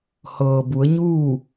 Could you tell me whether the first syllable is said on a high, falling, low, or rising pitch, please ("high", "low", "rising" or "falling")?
low